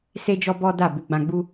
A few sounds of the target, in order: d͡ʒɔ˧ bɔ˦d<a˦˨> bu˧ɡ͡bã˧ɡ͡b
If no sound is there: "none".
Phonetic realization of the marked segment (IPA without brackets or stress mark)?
a˦˨